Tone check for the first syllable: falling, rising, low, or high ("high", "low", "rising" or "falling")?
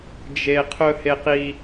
high